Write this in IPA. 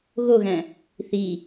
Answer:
ɣoɣæ̃ | θi

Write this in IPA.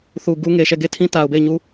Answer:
θu˨ ɡu˦ ŋe˨ʃɛ˦˨ɡe˦˨tʰĩ˦ ta˨ʊ̯be˦˨ɪ̯ɲu˦

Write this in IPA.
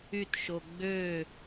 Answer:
ytʃo ɡ͡bø

